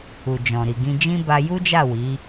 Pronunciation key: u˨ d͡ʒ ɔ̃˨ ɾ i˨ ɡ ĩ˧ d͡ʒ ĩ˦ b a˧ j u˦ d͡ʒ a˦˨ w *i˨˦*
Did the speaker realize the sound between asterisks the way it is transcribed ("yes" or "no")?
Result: yes